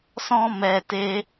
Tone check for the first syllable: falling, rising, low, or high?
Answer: high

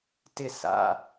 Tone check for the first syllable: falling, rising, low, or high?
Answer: falling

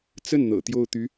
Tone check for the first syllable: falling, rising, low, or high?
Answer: falling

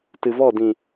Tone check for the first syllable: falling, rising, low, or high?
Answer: low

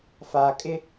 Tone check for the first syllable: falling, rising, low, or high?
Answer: low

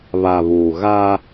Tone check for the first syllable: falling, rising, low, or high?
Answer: low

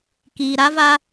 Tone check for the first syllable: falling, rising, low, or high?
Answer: low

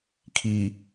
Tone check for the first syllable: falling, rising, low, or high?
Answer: low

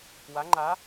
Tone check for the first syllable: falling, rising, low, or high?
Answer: rising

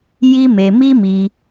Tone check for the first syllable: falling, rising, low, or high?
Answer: high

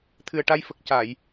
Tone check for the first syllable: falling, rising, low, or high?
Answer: low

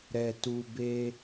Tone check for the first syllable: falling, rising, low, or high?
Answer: low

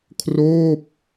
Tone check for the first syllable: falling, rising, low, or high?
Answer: falling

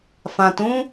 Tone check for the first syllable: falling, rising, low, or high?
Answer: low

